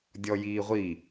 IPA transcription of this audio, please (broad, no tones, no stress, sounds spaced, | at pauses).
dʲ ɔ j iː ʁʷ i